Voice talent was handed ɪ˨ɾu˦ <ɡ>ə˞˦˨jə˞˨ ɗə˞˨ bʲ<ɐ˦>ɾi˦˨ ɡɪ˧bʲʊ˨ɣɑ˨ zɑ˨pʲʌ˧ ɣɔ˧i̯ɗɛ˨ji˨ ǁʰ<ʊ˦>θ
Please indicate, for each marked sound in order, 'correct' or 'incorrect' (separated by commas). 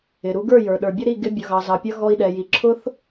correct, incorrect, correct